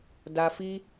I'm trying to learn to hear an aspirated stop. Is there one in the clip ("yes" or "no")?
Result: no